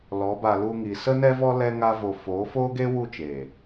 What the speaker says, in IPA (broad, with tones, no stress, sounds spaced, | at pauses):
l ɔ˨˦ b a˧ l u˧ ŋ i˨ s ə˦ n ɛ˦ v ɔ˦ l ɛ˦ ŋ a˦ v o˧ f oː˨˦ f oː˦ ɡ e˦ w u˦˨ t͡ʃ eː˨